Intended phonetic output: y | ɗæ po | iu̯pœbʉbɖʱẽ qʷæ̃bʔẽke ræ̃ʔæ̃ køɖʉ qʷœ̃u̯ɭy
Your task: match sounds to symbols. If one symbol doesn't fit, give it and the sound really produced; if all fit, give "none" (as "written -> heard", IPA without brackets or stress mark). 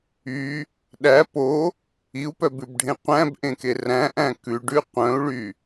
ø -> ʉ